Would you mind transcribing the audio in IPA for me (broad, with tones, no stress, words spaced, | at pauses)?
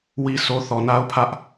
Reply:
wi˦so˦ θɔ˨na˦ʊ̯pʰä˦ʔ